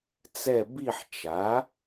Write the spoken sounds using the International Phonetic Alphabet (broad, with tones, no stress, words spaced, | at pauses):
t͡sɛ˦˨ bi˦˨ħt͡ʃa˩˥